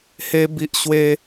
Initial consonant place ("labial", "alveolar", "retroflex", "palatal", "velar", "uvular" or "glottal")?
glottal